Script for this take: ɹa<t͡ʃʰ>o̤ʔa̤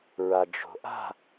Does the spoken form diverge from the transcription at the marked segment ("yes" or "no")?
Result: yes